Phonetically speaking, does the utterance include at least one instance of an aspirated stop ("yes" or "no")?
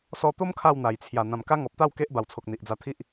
yes